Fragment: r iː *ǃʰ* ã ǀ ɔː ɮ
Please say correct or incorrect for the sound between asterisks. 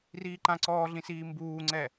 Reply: incorrect